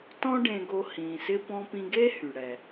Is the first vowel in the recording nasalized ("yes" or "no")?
yes